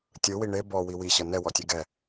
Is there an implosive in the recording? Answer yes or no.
no